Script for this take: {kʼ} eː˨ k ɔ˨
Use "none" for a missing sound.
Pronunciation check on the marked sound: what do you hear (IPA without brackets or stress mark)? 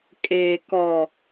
kʼ